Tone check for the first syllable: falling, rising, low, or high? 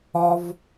high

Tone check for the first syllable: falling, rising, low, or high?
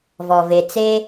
low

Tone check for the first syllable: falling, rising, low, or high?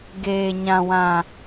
low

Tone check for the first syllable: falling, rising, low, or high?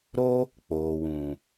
high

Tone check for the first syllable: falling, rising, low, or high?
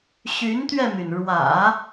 rising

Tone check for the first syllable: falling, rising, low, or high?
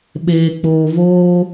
low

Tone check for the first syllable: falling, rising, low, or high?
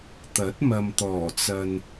rising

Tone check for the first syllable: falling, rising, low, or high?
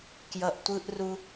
low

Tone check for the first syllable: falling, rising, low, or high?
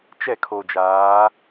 falling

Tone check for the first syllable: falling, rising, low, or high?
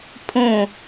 falling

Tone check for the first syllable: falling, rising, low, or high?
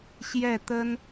falling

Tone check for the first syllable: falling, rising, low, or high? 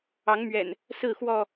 rising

